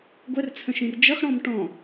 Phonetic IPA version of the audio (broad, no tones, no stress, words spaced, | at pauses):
ɡʷɛrt͡sʰə̃ʃĩr d͡ʒʌxɽɔ̃m ʈɔ̃